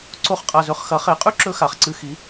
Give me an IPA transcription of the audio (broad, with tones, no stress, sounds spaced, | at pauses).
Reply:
ǀ o˥˧ χ qʼ a˧ z ɵ˧˥˧ χ x ɐ˩˥ χ e˩˥ qʼ ʉ˥ ǁ ɵ˧ x a˩˥ χ ǀ ɨ˧˥˧ x i˩˥